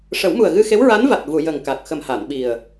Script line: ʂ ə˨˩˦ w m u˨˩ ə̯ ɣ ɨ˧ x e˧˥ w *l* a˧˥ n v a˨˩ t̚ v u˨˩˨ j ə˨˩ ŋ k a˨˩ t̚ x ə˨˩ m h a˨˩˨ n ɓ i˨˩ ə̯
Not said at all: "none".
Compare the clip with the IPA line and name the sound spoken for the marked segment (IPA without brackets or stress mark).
ɹ